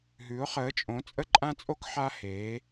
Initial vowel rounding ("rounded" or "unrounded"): rounded